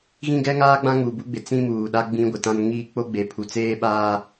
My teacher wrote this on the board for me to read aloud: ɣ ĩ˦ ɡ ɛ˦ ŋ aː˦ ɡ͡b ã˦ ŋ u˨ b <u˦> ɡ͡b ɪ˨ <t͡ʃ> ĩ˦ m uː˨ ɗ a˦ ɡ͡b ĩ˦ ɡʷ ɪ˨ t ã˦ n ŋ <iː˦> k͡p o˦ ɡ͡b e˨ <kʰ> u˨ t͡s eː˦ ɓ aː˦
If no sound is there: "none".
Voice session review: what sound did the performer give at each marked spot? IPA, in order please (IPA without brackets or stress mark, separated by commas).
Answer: u˦, t͡s, iː˦, pʰ